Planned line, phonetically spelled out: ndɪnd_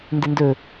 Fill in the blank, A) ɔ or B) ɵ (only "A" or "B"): B